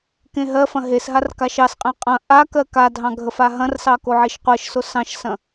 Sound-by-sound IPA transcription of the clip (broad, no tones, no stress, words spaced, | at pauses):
kẽɦɜfɐ̃ ɦesɦar kaʃɑsqʼẽ qʼɐ̃ ʔakɜ kadʱɑ̃ ɡʱəfaɦɐ̃rsɑ koʕiʃqʷɜʃso sɑ̃ʃsɐ̃